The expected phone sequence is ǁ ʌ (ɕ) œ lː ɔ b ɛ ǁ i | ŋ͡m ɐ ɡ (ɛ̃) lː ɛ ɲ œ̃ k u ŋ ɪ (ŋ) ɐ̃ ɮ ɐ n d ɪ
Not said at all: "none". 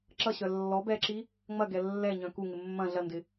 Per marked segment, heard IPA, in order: ɕ, ɛ, mː

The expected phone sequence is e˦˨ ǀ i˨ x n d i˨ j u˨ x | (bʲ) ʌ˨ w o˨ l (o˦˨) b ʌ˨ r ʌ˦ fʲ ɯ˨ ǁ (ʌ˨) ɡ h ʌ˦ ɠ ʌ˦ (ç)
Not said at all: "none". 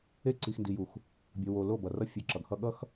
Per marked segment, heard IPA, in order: bʲ, o˦˨, ʌ˨, x

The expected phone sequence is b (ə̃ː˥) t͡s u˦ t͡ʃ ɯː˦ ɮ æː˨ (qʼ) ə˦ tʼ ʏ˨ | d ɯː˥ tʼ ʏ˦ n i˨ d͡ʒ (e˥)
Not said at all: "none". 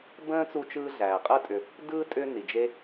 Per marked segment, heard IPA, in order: ə̃ː˥, qʼ, e˥

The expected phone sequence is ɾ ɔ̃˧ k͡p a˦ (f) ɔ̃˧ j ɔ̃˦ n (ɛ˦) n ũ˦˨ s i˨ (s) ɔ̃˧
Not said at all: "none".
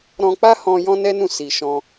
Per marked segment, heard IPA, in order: h, ɛ˦, ʃ

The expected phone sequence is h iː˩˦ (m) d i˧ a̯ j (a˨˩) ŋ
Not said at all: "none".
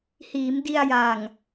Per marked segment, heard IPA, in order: m, a˨˩

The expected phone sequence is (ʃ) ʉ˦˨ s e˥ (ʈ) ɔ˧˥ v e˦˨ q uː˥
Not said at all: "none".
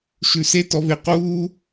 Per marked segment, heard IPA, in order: ʃ, t

